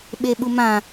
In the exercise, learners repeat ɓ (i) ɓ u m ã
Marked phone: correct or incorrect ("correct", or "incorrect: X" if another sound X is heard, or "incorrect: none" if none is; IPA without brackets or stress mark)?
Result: incorrect: e